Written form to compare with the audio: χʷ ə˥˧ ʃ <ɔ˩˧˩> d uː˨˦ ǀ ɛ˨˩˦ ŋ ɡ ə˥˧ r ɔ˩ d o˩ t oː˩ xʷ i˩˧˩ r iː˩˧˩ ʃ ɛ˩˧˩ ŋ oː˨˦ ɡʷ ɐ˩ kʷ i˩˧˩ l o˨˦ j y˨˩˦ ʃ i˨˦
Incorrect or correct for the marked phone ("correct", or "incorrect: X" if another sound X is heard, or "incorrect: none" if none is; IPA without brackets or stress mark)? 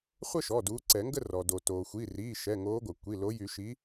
correct